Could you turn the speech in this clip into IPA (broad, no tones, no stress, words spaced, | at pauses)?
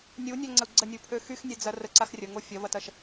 nʲunʲœŋ͡ǀəu̯ ɡ͡ǀənʲupʰø xyxnʲɛd͡zɐ rəǀax rʲəŋo fʲɐvɐtɐʃ